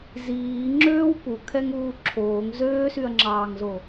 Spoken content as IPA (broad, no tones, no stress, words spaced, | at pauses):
ziːŋ͡ǁøːw pukʰɛŋuː ǁʰoːŋ zøːsyɐ̯ŋ͡ǁɑːŋzo